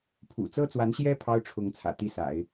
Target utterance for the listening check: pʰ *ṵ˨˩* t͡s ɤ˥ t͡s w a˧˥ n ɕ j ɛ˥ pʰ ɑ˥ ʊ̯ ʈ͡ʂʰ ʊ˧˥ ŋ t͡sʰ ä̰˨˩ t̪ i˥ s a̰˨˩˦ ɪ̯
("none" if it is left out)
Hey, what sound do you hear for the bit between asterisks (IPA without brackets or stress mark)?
ṵ˨˩